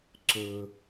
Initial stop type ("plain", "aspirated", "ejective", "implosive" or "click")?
click